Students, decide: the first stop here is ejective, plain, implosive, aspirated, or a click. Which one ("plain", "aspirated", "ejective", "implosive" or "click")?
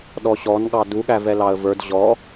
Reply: implosive